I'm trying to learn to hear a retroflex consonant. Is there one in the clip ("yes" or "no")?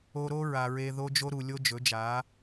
no